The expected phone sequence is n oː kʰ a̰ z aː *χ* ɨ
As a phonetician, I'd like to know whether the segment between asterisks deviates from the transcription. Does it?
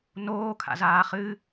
no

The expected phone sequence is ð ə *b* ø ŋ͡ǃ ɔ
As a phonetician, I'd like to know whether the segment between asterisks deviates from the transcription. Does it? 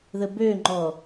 no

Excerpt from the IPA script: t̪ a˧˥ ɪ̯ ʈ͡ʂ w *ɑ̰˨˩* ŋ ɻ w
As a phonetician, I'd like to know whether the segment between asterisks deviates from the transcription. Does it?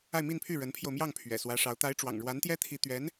no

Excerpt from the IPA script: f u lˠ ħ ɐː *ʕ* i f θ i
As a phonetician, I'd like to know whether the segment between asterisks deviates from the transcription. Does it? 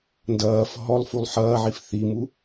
no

